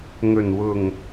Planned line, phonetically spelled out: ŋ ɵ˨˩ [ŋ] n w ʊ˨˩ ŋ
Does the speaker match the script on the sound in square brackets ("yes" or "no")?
no